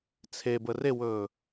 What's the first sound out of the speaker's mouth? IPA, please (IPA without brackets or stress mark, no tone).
t͡sʰ